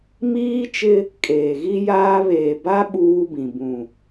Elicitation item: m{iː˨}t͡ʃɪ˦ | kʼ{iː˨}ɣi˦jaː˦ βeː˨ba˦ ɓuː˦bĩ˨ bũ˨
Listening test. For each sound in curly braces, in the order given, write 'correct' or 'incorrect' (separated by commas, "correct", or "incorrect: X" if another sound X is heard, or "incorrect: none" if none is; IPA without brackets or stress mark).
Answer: incorrect: iː˦, incorrect: eː˨